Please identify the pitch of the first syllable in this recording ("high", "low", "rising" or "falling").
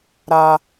high